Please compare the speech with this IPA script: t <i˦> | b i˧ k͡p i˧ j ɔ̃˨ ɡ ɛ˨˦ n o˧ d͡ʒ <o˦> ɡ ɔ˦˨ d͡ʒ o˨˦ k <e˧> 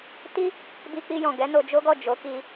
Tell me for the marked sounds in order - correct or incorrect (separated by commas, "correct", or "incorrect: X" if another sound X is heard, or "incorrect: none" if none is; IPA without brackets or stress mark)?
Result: correct, correct, incorrect: i˧